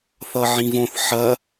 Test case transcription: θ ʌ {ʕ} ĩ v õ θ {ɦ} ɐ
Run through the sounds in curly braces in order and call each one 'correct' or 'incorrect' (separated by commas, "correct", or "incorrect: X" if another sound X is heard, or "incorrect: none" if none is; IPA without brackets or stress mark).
correct, incorrect: ħ